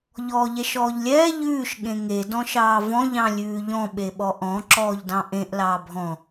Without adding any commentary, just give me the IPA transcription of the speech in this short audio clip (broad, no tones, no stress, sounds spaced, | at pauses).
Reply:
ʎ ɔː ʎ ɛ ʃ ɔː ʎ lʲ ɛː ʎ ʉː ʃ ɠ ẽ ŋ e d ɔ̃ ʃ ɑː v ɔ̃ ʎ ɑ̃ lʲ ʉː ʎ ɔ̃ ɓ e ɓ ɔ ʔ ɔ̃ ǁ ɔː ʎ d ɑ̃ ʔ ẽ ʔ l ɑː bʱ ɔ̃